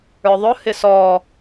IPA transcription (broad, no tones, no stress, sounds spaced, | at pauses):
ə˞ ðˤ ʊ h ɪ s ɔ